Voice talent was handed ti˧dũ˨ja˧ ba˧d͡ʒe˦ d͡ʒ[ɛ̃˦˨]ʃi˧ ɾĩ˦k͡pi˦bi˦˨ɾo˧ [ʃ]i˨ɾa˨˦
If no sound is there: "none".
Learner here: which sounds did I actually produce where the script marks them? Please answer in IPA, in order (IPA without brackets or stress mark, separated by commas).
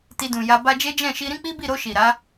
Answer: ɛ̃˦˨, ʃ